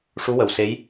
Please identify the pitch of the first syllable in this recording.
rising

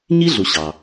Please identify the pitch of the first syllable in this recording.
high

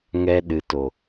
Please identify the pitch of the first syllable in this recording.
high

